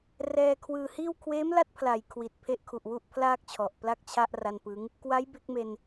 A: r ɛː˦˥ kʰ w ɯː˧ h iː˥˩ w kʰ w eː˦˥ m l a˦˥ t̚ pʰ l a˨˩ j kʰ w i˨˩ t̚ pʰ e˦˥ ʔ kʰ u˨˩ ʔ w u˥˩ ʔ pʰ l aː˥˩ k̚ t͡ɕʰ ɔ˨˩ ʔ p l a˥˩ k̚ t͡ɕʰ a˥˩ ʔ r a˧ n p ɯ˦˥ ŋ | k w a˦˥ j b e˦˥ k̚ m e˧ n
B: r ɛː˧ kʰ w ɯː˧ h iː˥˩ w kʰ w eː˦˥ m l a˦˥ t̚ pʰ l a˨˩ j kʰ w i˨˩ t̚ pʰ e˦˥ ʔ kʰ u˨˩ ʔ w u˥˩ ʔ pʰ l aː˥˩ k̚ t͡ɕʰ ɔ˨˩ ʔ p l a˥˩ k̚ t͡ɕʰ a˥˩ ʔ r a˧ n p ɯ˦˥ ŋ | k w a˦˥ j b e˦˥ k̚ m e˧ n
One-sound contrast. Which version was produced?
B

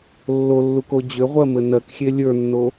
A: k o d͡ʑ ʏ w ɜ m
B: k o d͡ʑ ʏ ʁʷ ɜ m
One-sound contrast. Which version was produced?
B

